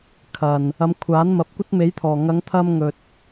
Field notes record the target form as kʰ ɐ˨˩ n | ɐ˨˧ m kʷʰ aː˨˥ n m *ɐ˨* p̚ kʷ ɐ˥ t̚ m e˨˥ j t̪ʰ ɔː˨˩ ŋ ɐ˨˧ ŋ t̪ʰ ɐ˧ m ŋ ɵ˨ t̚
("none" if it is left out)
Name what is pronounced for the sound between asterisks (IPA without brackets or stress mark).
ɐ˨